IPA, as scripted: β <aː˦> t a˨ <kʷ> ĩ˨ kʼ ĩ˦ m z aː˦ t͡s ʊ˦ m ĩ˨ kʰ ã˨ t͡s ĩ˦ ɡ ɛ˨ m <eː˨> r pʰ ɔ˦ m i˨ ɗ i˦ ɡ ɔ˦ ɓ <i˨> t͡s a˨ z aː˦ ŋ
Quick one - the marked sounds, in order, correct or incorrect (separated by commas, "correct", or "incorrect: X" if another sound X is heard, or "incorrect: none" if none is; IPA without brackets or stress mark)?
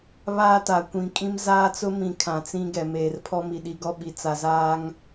correct, correct, correct, correct